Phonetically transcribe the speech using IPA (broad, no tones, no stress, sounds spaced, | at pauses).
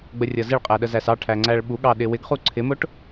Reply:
ɡ͡b ə rʲ ʌ z ɪ ɭ qʼ æ ɗ ə z æ s ɑ ʈʰ æ ŋ͡ǀ æ ɭ ɓ u ɠ ɑ ɗ ɪ w ɪ ɡ χ u ǀʰ ɪ m ʊ ʈ